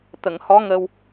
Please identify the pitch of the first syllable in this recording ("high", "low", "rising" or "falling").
low